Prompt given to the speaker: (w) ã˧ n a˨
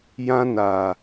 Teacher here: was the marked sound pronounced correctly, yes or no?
no